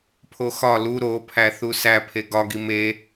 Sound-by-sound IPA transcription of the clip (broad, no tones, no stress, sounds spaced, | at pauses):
pʰ o x ɒ l u ɾ o pʰ æ θ u s æ pʰ e ɡ ɒ ɡ i m e